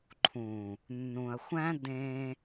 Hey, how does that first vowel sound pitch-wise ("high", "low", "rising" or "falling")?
low